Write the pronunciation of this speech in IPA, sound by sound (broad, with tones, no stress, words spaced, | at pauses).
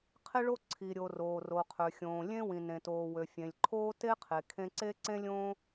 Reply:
qʰe˥ɭo˥ ǀʰi˩ɾʲo˩ roː˩ ro˩qʰø˩xʲõː˩ lʲẽ˥wĩ˩ nẽ˩toː˩wø˩ fʲẽ˩lʲǃʰoː˥ te˥qʰe˩ kʰẽ˥ ǀe˥ǀẽ˥lʲõː˥